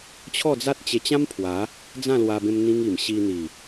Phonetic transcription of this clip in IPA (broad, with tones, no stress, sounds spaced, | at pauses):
t͡ɕʰ ɔ˥˧ d͡z a˦ t̚ t͡ɕ e˧ t͡ɕ ã˦ m pʰ w a˨˦ | d͡z ã˥˧ l w a˧ b ẽ˧ m n̪ ĩ˦ ŋ i˨˩ m ɕ i˧ n̪ i˨˩